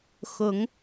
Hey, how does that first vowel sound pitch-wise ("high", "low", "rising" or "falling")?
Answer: rising